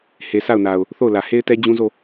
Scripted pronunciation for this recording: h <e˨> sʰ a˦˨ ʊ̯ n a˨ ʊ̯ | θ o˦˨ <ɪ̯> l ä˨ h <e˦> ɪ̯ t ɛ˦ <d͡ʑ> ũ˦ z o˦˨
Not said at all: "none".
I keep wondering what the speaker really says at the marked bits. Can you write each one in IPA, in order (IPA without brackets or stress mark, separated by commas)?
e˨, ʊ̯, e˦, d͡ʑ